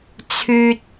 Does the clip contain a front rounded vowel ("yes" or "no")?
yes